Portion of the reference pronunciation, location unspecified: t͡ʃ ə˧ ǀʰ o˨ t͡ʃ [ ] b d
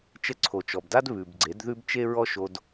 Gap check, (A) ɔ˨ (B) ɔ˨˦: A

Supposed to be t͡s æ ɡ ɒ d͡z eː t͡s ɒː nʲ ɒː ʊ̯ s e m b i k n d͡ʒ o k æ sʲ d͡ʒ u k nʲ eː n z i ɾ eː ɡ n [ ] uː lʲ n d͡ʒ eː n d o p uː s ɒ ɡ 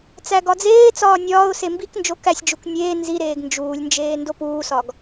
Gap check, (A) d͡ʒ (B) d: A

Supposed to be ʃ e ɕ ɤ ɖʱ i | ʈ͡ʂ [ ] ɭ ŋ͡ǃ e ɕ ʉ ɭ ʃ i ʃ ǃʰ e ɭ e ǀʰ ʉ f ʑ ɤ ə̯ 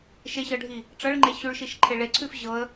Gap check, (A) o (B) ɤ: B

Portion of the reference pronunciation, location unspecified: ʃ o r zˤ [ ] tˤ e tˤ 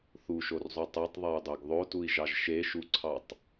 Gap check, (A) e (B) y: B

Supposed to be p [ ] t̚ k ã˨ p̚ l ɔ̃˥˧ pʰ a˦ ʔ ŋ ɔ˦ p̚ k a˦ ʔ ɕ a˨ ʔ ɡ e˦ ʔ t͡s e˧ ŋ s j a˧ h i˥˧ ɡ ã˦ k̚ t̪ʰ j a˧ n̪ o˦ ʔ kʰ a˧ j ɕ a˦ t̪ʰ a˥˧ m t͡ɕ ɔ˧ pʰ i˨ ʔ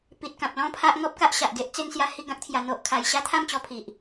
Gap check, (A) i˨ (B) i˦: A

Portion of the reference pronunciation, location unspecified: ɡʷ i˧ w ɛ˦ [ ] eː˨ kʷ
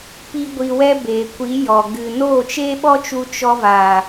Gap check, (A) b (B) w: A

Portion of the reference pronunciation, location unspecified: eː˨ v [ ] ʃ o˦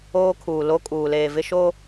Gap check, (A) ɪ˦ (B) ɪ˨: A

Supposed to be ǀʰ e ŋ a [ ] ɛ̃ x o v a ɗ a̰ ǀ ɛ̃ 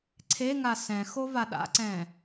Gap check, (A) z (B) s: B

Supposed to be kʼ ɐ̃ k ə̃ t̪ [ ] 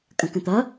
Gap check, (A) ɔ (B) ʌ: B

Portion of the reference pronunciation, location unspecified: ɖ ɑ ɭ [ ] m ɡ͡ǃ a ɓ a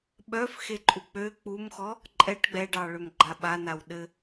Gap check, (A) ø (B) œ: A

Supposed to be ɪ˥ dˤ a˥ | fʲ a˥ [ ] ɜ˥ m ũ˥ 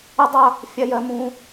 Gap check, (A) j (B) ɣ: A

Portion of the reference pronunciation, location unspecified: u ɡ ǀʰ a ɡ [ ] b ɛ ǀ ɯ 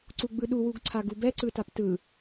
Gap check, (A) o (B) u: B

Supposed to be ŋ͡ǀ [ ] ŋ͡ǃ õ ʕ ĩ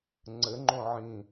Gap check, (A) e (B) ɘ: B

